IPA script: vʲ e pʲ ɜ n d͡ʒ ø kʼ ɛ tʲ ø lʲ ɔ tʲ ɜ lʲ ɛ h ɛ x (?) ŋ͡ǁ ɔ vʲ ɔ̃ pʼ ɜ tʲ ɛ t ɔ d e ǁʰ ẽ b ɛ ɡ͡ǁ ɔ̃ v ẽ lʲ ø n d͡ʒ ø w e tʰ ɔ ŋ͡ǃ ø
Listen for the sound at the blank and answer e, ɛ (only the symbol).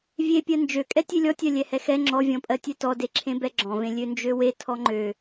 ɛ